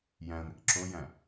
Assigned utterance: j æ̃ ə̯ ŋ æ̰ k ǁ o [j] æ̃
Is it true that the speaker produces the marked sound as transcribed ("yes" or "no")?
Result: yes